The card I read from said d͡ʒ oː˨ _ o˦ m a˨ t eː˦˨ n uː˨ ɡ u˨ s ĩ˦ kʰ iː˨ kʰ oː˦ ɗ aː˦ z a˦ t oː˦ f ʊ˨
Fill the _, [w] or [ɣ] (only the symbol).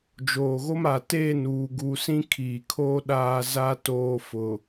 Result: ɣ